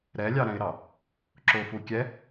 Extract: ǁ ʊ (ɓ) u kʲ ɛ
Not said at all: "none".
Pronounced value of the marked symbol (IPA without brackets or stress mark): f